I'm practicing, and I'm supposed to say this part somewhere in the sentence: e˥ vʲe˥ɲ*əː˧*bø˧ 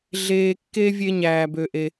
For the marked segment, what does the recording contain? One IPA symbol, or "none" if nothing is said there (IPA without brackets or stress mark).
æː˧